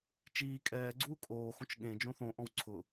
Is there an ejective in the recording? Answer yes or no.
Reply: yes